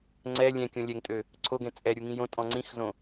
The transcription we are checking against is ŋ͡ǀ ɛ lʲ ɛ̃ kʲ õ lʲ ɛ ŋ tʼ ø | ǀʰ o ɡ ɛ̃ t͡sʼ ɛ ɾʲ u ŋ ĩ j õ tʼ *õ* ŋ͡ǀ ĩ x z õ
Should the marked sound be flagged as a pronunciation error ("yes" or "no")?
yes